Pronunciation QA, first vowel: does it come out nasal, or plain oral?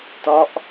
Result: oral